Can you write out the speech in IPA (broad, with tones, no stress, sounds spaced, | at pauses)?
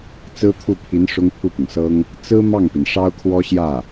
t͡s ɹ̩˥ t̪ʰ u˥˩ pʰ i˧˥ n ʂ ʊ˥ ŋ pʰ u˥˩ p ʊ˩ ŋ s ɤ˥ ŋ | t͡s ɹ̩˥ m ɑ˥˩ ŋ p i˩ n ʂ ɑ˥ ʊ̯ kʰ w ɔ˥ ɕ j ä˥˩